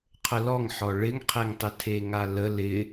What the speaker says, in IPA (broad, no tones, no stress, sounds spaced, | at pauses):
qʰ ə l ɔ ŋ ħ ɔ ɭ ɪ ŋ qʰ e ŋ tˤ ɪ tʰ e ŋ a l ə l ɪ